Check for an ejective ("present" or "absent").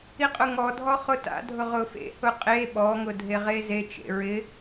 present